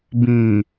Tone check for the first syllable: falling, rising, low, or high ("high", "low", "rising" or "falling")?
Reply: low